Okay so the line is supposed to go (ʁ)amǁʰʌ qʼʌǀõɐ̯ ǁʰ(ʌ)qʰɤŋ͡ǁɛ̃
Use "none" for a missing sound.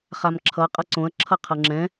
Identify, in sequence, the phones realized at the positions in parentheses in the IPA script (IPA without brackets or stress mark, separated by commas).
χ, ʌ